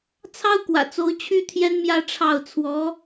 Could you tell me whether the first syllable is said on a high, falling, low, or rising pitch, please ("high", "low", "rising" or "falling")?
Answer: high